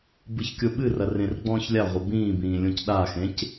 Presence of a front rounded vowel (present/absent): absent